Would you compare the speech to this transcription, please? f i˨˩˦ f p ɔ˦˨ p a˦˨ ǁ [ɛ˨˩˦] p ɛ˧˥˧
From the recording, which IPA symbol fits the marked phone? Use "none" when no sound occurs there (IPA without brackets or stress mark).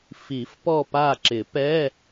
ɪ˨˩˦